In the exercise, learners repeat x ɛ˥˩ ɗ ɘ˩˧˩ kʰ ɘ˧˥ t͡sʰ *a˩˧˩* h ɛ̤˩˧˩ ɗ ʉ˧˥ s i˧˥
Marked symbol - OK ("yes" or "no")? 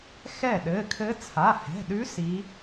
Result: yes